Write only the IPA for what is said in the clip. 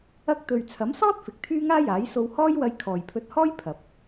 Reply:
ɐ˥ k̚ t̪ ɵ˧ ɥ t͡sʰ ɐ˨˥ m s ɔː˥ t̚ f ɪ˨ k̚ t̪ʰ yː˥ ŋ aː˥ j aː˨˥ j s o˧ w h ɔː˥ j w ɐ˧ j kʰ ɔː˨ j pʰ ɵ˧ t̚ h ɔː˥ j pʰ ɐ˨ p̚

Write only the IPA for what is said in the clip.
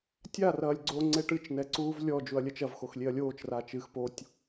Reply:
tʲ a r ɐː lʲ ɡ͡ǀ o ŋ͡ǀ e ʈ ɨ t͡ʃ n ɛ ǀ uː v lʲ ɔ d͡ʒ u ɐ̯ lʲ ɐ t͡ʃ ɐ v x o x lʲ e ɐ̯ lʲ oː t͡ʃ r a t͡ʃ ɨ x p o tʲ

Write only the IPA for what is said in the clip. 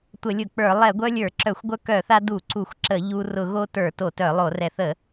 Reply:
tʷ ə˧˩˧ lʲ ʊ˧˩˧ k͡p ə˞˧˩˧ lˠ ɛ˧˩˧ ɡʷ œ˦ lʲ ə˞˧˩˧ ǁ œ˧˩˧ xʷ ɡʷ œ˦ k œ˧˩˧ θ a˦ d u˧˩˧ ǀ u˧˩˧ xʷ ǁ ə˧˩˧ ʎ u˦ r ʊ˧˩˧ ɣ o˦ t ə˞˧˩˧ t o˧˩˧ t œ˧˩˧ lˠ o˧˩˧ r ɛ˧˩˧ θ ə˧˩˧

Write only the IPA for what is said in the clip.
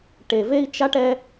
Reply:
ʈ e˨ v e˦ i̯ t͡ʃ a˥ ʈ ɛ˦

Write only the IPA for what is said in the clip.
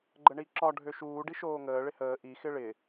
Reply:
ɡ͡ǃ ə ɳ i ǁ ɒ ɖʱ ø ʃ uː ɖ i ʃ oː ŋ əː ɭ ɪ h əː ʔ i x ɪ ɭ ɪ

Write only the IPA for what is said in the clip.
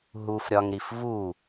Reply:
ɦ u f ɾʲ ɒ ŋ ɾ i f v u

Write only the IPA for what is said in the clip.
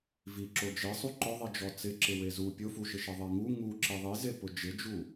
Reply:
v i ǁ o d͡ʒ e sˤ u ǃ ʊ ðˤ i d͡ʒ ɔ t͡s ɪ ǁ ɪ w e z u pʲ ʊ f u ʃ ɪ ʃ ɛ ðˤ ɛ ŋ u ŋ u ǁ i ðˤ i z e p ʊ d͡ʒ ɪ d͡ʒ u

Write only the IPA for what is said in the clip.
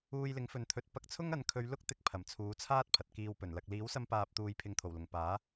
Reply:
uː˧ j l ɪ˨˥ ŋ f ɵ˨ n t̪ʰ ɵ˨˥ t̚ p ɐ˧ k̚ t͡sʰ ʊ˥ ŋ ɐ˨˥ n kʰ ɵ˨˧ ɥ l ʊ˥ k̚ t̪ ɪ˧ k̚ pʰ ɐ˨˩ m t͡sʰ uː˨˥ t͡sʰ aː˥ t̚ pʰ ɐ˨ t̚ k iː˧ w p ɵ˨˩ n l ɐ˨ k̚ l iː˨˥ w s ɐ˧ m p aː˨ p̚ t̪ uː˨ j pʰ ɪ˧ ŋ t̪ʰ o˨˩ w l ʊ˨˩ ŋ p aː˨˥

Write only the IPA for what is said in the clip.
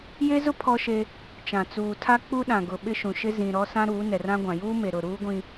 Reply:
j e˦ z ʊ˦ pʰ ɔ˦ ʃ e˦ | t͡ʃ ã˨ t͡s uː˨ tʰ a˦ k͡p u˦ ɗ ã˨ ɡ ʊ˨ ɓ ɪ˦ ʃ ũ˨ ʃ ɪ˦ z ĩ˨ ɾ ɔ˦ s ã˦ ɾ uː˨˦ n ɛ˨ r ã˦ ɡʷ ã˨ j uː˦ m e˨ ɾ ʊ˨ ɾ uː˦ ɡʷ ĩ˨

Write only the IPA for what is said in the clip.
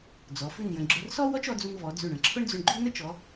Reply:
d͡z ɔ˩˧ f ʉ˥˧ n j ə̃˧ ɡ͡ǁ ʊ˧ r s ɔ˥ w ɔ˥ t͡ʃ ɔ˩˧ d͡z u˧ n v ɔ˩˧ d͡z ʉ˧˩ ɳ ə̃˩˧ ǁʰ ʊ˥ ɳ d͡z ʉ˧ ɳ ɡ͡ǃ ʉ˥ n ə˥ t͡ʃ ɔ˩˧

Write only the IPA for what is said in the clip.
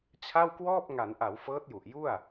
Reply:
t͡ɕʰ a˥˩ w k w ɔː˥˩ p̚ ŋ a˩˦ n ʔ a˩˦ w f ɤː˦˥ t̚ j u˨˩ ʔ j u˥˩ a̯

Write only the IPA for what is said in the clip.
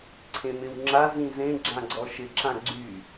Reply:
ǀʰ ẽ m ɪ w ŋ͡ǁ a z ĩ z ẽ ɡ͡ǁ ã ɡ͡ǀ ɔ ʃ ɪ ǁ ã ɡ͡ǀ y

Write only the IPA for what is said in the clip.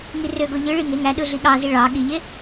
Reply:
ŋ i r ø ɡ o ʎ ɯ ɭ i ŋ e ŋ æ ɗ ɯ ɮ i ɠ ɑ z i ɭ ɑ ɠ i ʎ e

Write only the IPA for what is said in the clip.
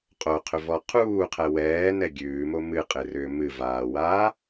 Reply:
qʼ o qʰ ʏ v ɔ qʰ uː qʰ ɛ w ɛː n ɛ ɡʲ ʉː m o m ɨ qʼ ɪ r ʏː m ɨ v aː w aː

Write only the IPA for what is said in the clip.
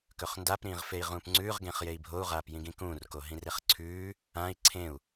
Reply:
k ɵ χ n d a p ɾ ĩː ʁ f e i̯ ʁ ũː p ŋ͡ǀ ʉː ʁ ɡ ẽ χ j e i̯ bʱ o u̯ ʁ aː p j ĩ ɡ ĩ k ũː r k o ɦ ĩ r e χ ǀʰ ʉː | ã i̯ ǀʰ ẽ u̯

